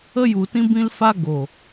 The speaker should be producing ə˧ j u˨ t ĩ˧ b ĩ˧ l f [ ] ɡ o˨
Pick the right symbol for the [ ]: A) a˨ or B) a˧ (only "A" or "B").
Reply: B